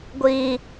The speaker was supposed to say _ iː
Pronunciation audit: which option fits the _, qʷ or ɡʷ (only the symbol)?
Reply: ɡʷ